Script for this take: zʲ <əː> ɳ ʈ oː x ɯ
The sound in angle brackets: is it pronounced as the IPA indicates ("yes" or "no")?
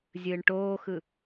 no